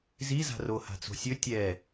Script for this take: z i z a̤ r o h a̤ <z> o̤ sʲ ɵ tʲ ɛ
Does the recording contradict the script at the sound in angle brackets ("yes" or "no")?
yes